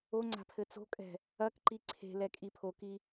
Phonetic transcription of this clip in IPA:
oŋ͡ǀa̤ pʰɘt͡so̤kʼɛ̤ | ɐkǃi ǀʰe̤ lɛkʼipʰoki

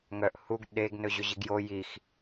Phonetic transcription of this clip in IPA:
ŋœʔ huɡ ɗeɡ nɵʑɵʑiɡjo jix

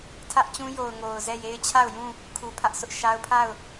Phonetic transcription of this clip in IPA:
tʰä˦ʔt͡ɕũ˦jo˨ʊ̯ ŋo˨ʊ̯zɛ˦˨je˦ɪ̯ t͡ɕʰa˦˨ʊ̯jũ˦˨ | kʰu˨pʰä˦ʔ sʊ˦ʔʃa˦ʊ̯ pʰa˦˨ʊ̯

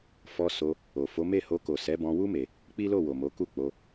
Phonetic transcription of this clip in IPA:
fɔ˧so˧ | o˨fo˨˦ me˦˨ ho˧ko˨ sɛ˨˦bɔ̃˧wu˦ me˧ | k͡pi˦lo˦˨wo˨mo˨˦ ku˦˨k͡po˧

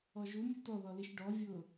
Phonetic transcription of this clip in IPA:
ɔʒu mʲutɔðɔliʃ ɖɔ vʲʊ

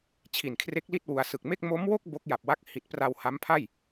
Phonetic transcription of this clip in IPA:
t͡ɕʰi˨˩nkʰre˦˥k̚li˥˩t̚ wu˧a̯ sɯ˨˩k̚me˥˩k̚ mo˦˥mwo˥˩k̚ bo˦˥k̚ ja˨˩p̚wa˦˥k̚ hi˨˩t̚pra˧w ha˦˥mpʰa˥˩j

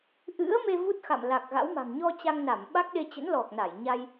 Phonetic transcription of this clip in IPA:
ʔɨ̰˧˥ə̯me˧ vu˦˥t̚xa̰˧˨mla˨˩k̚ ɣa̰˧˥wma̤˨˩ŋ ɲɔ˧ t͡ɕa˧ŋna˧˩m ɓa˦˥k̚ɗe˧ t͡ɕə̰˧˥nlɔ˨˩k̚na˧˩jɲa˧j

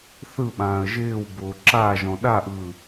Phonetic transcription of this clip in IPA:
θɯɓãːə̯ ʒɪːwbʊː ǁaʒɔ̃ ɗaʔɯː

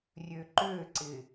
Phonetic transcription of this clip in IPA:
rʲøǃøǀɪ

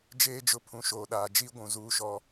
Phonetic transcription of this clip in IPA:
d͡ʒeː˦d͡ʒʊ˦ pʰũ˨ʃoː˨ɗaː˨ d͡ʒi˦ ɡʷũ˨zuː˦ʃɔ˦

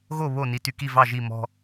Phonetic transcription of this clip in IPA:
ɣo˥˨βo˥˨ ni˧ty˧ki˥˨ vɑ˥˨ʒi˥˨ mɔ̤˧

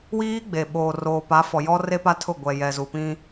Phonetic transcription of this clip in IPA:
wiː˦ɡ͡be˨ɓoː˨ roː˨pa˨˦fɔ˨jɔ˦ re˦pa˦tʰʊ˦˨ ɡʷɛ˨ jɛ˨zu˨pĩ˦

